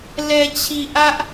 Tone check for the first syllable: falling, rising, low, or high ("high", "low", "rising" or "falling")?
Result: low